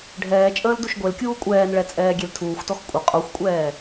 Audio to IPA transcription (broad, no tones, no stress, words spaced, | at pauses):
ɖʱɛːt͡ʃʼəːl duʃɡʷelkʲuː kʷʼɛːnɭɛ t͡sʼɛːɡʲeltʰuːxʷtɔx kʷʼə qʼoxʷkʷʼɛː